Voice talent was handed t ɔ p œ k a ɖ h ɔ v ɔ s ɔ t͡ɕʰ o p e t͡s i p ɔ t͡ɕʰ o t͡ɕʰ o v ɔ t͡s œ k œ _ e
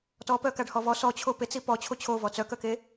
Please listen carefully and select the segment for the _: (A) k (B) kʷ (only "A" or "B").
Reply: A